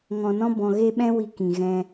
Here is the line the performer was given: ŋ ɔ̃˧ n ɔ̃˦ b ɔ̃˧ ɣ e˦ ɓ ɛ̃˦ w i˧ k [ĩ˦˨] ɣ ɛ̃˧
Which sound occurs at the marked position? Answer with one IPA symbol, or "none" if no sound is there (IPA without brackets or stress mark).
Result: ĩ˨